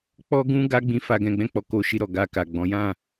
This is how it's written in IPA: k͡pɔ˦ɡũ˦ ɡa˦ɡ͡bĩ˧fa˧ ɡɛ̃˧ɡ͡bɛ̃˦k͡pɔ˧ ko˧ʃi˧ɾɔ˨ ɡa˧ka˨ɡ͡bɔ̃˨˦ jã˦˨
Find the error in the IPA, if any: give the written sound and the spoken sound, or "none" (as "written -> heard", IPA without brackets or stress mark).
none